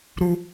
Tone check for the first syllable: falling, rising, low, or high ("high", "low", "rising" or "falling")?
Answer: high